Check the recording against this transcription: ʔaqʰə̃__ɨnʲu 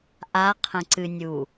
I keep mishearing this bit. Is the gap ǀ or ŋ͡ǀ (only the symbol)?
ǀ